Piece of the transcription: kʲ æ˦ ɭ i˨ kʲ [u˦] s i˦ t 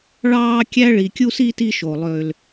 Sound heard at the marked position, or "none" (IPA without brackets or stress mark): u˦